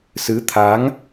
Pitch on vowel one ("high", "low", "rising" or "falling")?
rising